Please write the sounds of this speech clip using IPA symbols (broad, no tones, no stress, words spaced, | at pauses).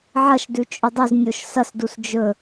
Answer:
ʕɐʃdʉ t͡ʃʼudˤʉznʲoʃ sɐsdus d͡ʒɵ